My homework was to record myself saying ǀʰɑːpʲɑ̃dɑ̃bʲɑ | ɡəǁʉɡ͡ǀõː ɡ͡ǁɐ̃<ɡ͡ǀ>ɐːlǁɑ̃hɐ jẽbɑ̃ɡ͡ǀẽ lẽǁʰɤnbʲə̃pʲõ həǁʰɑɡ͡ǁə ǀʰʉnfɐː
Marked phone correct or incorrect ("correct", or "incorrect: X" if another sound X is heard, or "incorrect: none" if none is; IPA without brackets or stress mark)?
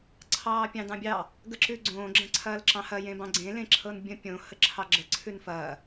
incorrect: ǀʰ